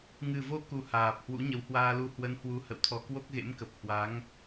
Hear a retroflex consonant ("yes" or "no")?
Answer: no